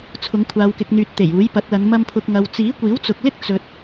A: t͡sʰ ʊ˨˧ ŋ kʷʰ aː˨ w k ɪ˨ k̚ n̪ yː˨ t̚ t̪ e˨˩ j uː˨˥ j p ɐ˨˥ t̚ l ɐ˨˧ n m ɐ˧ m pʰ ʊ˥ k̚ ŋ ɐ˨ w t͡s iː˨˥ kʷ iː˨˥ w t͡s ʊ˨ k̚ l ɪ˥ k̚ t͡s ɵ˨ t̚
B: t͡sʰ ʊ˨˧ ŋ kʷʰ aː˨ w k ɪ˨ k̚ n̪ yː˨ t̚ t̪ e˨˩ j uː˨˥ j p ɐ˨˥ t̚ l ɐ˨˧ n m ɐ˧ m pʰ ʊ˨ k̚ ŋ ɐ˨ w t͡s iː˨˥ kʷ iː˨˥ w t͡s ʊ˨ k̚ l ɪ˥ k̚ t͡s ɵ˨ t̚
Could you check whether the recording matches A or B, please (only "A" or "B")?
B